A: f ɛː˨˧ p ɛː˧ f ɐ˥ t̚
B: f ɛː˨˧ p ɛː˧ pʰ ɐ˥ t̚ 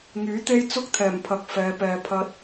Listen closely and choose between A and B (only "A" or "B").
B